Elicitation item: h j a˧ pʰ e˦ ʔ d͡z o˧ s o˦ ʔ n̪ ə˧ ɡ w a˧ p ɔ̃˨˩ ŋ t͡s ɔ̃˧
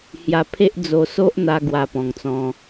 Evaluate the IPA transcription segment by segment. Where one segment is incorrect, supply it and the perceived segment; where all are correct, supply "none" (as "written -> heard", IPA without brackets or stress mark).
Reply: ə˧ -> a˧